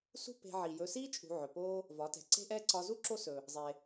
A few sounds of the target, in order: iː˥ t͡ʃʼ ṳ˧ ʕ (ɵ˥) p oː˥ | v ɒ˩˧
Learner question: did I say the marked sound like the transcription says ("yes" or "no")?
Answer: no